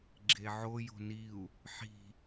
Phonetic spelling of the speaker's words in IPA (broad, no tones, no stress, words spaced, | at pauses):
ɡ͡ǁeʕo jo̤niu̯ | ħi̤